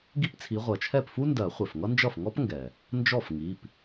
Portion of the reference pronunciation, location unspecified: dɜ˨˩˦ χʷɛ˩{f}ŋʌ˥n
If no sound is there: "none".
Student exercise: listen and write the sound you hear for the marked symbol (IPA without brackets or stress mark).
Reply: f